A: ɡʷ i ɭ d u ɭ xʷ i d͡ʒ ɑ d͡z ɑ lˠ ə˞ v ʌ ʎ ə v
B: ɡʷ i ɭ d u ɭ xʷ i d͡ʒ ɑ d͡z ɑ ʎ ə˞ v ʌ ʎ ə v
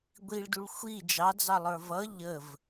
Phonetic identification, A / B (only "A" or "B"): A